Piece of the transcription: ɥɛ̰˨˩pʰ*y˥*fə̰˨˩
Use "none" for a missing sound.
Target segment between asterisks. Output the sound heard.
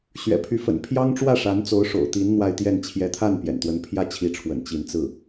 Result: y˧˥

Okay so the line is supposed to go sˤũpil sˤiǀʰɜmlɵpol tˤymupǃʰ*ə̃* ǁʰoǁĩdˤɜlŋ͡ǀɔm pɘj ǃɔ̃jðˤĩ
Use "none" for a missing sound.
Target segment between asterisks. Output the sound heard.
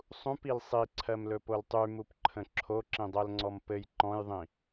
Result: ə̃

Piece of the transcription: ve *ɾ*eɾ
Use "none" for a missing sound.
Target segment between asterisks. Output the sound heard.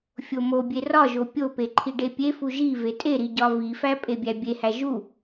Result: tʼ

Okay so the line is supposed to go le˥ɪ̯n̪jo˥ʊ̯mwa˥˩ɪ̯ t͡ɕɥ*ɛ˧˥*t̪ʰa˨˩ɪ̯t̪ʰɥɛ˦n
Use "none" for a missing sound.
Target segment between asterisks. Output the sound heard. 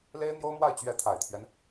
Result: ɛ˧˥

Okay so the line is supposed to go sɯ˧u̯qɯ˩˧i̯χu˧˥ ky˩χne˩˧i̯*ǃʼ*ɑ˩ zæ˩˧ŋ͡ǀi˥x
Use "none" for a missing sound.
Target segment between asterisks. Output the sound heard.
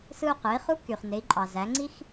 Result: ǃʼ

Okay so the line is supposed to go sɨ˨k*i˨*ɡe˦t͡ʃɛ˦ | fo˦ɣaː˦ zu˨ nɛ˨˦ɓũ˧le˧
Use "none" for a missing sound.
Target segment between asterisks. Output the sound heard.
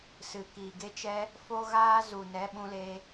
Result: i˨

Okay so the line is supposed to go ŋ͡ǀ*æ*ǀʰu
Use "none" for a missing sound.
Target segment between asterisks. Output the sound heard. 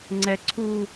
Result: ɛ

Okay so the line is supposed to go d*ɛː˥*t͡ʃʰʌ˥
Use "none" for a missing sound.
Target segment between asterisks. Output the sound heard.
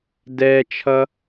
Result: ɛː˥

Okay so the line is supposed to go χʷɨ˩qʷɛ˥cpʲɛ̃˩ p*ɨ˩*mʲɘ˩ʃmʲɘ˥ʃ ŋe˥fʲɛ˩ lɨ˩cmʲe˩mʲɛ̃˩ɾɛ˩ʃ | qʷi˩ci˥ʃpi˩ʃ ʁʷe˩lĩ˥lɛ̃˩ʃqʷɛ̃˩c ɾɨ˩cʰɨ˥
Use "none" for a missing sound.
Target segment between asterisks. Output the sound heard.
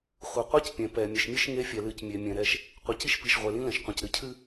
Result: ɛ˩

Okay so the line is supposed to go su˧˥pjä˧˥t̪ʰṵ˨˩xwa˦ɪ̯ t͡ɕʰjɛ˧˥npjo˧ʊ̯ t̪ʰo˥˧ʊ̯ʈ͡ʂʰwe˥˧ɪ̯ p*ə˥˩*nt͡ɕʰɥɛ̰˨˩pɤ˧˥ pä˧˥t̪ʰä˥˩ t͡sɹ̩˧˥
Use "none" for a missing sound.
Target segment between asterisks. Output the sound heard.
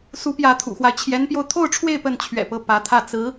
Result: ə˥˩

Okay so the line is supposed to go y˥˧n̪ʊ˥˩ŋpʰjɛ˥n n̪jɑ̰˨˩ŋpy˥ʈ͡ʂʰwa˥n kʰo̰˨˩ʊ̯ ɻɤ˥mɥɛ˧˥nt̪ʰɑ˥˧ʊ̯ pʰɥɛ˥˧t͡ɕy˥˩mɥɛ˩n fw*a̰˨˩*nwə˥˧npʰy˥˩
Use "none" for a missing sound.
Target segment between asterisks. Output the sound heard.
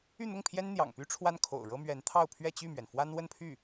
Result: a˥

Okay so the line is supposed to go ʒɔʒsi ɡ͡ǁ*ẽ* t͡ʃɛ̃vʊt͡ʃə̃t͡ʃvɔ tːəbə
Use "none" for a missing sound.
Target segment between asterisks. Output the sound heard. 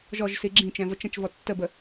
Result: ĩ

